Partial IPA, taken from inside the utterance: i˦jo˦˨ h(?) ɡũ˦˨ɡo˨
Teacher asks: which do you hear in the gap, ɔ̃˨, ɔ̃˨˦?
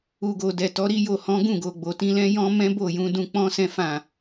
ɔ̃˨˦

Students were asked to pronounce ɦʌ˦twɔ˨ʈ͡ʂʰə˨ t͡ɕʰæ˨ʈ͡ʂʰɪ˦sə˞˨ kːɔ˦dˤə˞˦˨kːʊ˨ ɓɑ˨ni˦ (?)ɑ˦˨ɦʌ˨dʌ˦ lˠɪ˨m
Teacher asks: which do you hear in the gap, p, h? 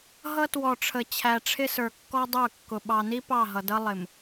p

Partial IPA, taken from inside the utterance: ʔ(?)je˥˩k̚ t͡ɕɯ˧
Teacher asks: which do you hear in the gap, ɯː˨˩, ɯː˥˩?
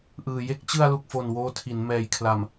ɯː˨˩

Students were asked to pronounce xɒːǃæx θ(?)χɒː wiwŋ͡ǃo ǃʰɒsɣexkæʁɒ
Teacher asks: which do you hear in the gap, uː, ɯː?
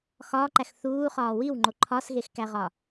uː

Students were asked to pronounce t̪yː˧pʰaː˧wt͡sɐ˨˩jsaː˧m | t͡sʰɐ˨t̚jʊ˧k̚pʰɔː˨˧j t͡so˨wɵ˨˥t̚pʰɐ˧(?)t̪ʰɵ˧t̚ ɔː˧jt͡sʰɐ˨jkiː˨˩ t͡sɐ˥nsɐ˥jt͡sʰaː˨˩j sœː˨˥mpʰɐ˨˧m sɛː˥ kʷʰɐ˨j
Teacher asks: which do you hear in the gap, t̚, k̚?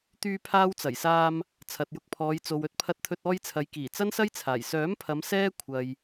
t̚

